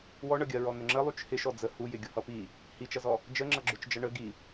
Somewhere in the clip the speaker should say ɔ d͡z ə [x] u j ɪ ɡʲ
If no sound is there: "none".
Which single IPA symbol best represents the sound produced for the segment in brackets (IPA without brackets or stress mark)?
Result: h